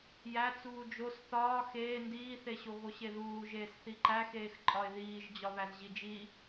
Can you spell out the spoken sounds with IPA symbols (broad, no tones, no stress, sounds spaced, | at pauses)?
j æ t͡s uː d͡ʒ o s θ ɒː x eː n d iː θ e ɕ o ɣ o ɕ e ð uː ʒ eː s θ i ǃ æ x eː x ǃʼ ɒ ɪ̯ ð iː ʒ d͡ʑ ɒ β æ z ʑ i d͡ʒ i